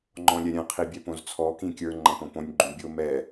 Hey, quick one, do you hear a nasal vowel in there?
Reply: yes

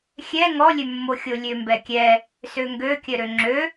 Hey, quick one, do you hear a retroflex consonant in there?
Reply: no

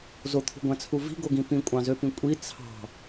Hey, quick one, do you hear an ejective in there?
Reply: yes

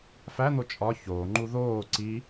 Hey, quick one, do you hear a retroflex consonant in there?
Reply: no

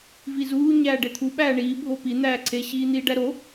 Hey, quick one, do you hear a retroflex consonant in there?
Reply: yes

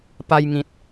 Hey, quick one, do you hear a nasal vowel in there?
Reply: yes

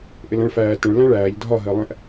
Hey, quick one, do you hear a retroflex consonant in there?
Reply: yes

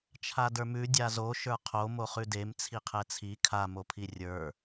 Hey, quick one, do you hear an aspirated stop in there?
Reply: yes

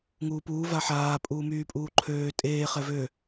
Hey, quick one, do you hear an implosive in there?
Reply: no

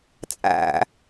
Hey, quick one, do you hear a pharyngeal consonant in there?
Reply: no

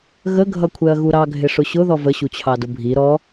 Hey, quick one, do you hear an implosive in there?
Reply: no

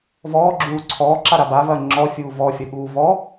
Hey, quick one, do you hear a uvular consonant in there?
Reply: no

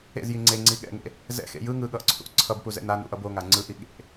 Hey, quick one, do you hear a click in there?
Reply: yes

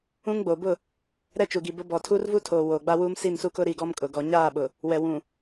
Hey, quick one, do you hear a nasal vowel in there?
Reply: yes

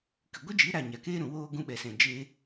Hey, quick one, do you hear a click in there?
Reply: no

